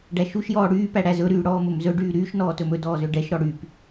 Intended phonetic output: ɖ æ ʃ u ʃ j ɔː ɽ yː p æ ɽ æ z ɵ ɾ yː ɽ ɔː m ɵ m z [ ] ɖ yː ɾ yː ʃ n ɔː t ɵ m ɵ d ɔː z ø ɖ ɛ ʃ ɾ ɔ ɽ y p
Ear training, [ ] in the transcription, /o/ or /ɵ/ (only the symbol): ɵ